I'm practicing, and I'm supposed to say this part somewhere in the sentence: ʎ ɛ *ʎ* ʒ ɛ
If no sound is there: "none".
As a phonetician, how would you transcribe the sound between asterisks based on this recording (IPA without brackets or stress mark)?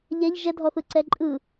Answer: ʎ